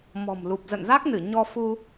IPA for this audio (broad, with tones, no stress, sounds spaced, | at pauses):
m ɔ̤˨˩ m l u˨˩ p̚ z ə̰˧˨ n z a˦˥ k̚ n ɨ˧˩ ɲ ɔ˧ f u˧